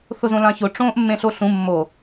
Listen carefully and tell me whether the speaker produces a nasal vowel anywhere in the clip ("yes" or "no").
yes